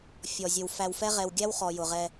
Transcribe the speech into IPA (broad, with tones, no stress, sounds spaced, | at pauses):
fʲ ɔ˩ zʲ ə˩ w f æ˨ w f ɛ˦ ʁ ɛ˨ w ɡʲ æ˦ w χ ɔ˩ j ʊ˩ ʁ ɛ˨